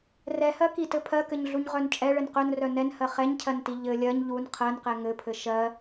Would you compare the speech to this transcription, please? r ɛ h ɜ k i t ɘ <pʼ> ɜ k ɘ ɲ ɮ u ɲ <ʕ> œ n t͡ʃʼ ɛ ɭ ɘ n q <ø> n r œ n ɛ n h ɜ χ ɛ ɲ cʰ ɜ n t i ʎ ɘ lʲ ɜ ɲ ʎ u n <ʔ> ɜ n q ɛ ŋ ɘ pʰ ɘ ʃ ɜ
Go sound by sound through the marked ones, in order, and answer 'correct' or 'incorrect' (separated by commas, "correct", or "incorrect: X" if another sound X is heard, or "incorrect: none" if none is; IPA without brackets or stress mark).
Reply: incorrect: pʰ, incorrect: ʁ, incorrect: œ, incorrect: qʰ